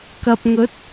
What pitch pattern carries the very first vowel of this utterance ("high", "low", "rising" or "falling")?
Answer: low